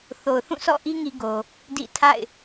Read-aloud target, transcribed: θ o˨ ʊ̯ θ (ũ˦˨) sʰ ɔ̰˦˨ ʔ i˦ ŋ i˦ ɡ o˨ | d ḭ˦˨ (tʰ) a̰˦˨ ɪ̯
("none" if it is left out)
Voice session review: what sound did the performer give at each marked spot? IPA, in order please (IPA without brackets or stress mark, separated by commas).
ũ˦˨, tʰ